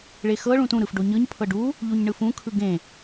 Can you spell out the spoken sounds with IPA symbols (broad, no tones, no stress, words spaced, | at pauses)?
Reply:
ɭexɤ ɭũtũ ɾɯfɖoɲɯɲ pʰɤɖu | ʎuɲɳɯfũ kʰɯɡẽ